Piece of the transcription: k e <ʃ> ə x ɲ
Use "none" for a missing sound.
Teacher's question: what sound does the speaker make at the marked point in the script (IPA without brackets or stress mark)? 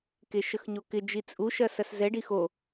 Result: ʃ